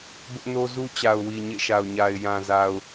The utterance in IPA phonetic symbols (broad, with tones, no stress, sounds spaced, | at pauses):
b ʊ˦ ʔ n o˦ z u˦ t͡ɕ a˨ ʊ̯ w i˨ ɲ ḛ˦˨ ʃ a˨ ʊ̯ ɲ a˨ ɪ̯ j ã˨ z a˨ ʊ̯